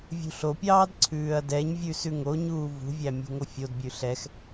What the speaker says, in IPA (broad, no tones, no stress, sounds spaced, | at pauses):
vʲ ṳ ɬ o pʲ ɑː d ǀʰ ʉː ɐ̯ d ɛ ɲ vʲ ʉ s ʉ ŋ o ɲ uː v ṳ vʲ æ mʲ ṳ ŋ o fʲ o d bʲ ʉ ɬ ɛ x